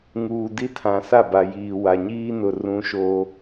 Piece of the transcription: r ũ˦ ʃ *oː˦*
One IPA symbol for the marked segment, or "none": oː˦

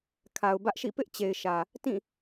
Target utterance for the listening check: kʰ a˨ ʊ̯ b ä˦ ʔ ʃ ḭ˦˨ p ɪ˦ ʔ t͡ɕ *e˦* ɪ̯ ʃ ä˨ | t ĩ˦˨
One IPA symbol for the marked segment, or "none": e˨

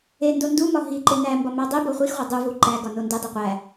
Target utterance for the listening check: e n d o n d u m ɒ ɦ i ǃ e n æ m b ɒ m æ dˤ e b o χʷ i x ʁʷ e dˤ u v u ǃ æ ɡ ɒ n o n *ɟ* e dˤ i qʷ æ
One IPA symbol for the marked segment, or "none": d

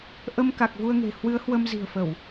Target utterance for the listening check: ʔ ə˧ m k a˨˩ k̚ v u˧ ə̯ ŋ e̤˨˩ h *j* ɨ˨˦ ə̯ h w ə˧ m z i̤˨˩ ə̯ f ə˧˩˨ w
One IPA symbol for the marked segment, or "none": w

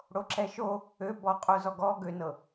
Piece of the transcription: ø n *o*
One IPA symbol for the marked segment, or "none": ɤ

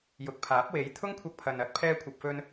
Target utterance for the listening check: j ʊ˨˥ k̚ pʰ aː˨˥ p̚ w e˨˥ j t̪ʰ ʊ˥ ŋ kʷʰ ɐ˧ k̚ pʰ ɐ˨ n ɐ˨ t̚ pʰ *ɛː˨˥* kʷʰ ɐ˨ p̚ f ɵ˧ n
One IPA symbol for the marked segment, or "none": ɛː˧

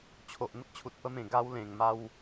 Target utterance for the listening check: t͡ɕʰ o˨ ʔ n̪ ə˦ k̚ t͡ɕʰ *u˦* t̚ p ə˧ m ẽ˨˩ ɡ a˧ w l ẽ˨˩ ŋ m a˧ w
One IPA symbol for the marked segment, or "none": u˨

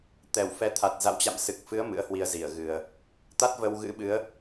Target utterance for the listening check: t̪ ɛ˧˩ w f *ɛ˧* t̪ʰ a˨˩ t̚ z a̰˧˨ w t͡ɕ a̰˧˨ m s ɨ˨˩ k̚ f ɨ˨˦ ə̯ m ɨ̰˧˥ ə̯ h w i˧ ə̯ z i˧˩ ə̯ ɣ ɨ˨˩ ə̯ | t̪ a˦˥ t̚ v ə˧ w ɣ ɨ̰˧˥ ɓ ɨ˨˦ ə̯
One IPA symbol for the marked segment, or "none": ɛ˨˦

